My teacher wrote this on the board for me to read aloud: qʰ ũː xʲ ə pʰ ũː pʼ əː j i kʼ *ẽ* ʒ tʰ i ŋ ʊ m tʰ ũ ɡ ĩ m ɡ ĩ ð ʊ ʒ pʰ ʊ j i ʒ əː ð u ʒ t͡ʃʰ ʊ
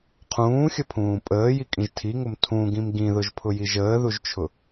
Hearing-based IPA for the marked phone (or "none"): ĩ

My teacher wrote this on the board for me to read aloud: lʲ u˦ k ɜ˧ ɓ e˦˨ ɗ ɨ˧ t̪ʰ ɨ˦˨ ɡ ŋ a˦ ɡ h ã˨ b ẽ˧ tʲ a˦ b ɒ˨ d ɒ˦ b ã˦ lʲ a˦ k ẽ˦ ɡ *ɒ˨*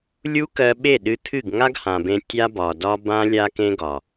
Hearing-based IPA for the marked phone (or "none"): ɒ˨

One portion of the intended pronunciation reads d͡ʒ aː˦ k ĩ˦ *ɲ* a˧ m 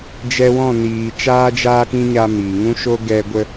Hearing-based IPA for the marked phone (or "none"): ɲ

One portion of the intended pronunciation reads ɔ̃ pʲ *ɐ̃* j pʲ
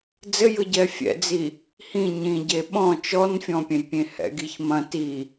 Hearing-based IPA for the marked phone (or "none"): ɐ̃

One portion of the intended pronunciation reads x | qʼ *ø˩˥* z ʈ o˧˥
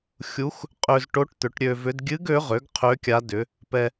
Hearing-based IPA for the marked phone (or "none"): ø˧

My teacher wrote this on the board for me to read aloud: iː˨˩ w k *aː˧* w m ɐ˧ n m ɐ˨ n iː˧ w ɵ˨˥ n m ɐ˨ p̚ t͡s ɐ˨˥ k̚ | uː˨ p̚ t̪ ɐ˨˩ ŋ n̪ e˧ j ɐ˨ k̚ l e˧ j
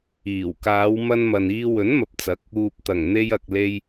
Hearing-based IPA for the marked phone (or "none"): aː˨˧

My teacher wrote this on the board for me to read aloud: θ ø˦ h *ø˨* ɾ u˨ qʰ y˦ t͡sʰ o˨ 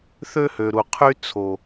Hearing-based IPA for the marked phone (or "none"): ø˨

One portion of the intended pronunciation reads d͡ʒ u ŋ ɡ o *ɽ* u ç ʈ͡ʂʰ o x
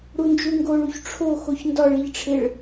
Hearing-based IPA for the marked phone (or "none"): ɭ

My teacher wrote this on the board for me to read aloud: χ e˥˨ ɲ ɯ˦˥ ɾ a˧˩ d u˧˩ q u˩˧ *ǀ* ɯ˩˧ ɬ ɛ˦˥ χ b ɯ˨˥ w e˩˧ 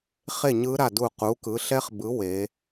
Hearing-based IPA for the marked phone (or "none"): k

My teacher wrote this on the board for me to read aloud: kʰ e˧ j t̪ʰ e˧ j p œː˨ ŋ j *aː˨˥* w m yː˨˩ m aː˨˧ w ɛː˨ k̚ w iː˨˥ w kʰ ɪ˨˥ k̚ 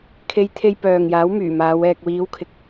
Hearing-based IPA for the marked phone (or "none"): aː˨˥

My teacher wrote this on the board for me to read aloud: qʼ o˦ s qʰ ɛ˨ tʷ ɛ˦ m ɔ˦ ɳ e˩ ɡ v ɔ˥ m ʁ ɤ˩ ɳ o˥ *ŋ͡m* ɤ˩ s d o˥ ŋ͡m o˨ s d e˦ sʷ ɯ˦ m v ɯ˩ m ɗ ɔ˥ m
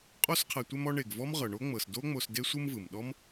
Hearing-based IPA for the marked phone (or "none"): ŋ͡m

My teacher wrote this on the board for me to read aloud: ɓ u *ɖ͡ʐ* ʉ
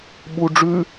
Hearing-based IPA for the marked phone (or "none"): ɖ͡ʐ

